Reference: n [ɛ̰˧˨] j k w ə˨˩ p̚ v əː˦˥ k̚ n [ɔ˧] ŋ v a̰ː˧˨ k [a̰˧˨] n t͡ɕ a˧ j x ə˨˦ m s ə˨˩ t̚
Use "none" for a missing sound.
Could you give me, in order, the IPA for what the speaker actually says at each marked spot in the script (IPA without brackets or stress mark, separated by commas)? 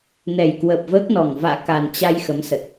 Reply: ɛ˨˩, ɔ˨˩, a˨˩